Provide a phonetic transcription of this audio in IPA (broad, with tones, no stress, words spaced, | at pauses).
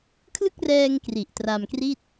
kʰlɯ˥˩k̚rɛː˧ŋ kri˨˩ʔtra˧mkri˥˩t̚